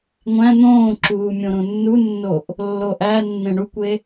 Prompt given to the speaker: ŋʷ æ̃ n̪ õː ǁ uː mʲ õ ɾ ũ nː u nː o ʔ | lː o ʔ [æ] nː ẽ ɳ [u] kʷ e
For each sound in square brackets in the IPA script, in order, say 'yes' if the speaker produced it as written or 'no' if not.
yes, yes

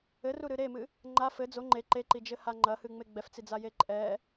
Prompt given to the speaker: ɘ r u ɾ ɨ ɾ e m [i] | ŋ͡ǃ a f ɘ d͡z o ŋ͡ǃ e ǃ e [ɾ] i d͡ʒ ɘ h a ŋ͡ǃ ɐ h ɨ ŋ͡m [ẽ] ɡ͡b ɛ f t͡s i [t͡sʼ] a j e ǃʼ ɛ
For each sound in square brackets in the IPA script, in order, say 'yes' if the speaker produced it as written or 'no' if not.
no, no, no, no

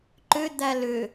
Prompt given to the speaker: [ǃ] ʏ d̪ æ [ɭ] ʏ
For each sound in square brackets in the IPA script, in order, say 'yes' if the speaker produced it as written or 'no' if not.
yes, no

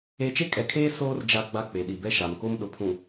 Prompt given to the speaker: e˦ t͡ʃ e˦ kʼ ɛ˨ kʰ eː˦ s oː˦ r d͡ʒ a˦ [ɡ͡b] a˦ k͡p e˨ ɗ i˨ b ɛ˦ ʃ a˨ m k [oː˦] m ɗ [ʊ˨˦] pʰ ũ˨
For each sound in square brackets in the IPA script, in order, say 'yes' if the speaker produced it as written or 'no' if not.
yes, no, no

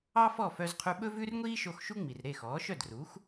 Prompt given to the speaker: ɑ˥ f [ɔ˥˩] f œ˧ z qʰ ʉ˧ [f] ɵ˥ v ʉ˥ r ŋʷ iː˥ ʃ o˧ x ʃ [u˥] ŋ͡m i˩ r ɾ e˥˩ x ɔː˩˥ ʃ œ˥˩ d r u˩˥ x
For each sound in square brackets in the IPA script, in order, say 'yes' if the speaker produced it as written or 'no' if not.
yes, no, yes

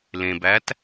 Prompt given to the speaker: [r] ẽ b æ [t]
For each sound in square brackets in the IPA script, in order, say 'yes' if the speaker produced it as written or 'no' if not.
no, yes

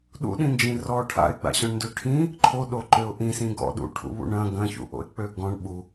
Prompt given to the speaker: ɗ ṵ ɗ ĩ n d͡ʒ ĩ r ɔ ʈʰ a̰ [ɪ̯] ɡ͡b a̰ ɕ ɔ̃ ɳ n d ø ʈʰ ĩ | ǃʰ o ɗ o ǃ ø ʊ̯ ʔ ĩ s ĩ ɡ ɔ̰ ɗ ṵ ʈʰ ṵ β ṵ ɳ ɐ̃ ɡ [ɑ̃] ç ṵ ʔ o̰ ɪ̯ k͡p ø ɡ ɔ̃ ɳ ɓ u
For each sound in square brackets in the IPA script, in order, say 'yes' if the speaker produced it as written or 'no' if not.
yes, no

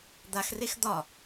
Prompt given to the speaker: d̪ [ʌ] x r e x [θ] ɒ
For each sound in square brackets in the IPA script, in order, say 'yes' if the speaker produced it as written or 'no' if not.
no, no

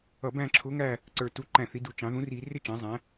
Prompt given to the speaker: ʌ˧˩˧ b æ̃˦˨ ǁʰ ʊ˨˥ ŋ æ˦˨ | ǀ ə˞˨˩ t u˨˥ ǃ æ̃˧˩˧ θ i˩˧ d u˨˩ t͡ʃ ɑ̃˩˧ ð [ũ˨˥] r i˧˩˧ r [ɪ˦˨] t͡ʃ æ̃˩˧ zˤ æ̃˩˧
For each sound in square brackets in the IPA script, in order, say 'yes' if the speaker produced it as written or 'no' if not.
yes, yes

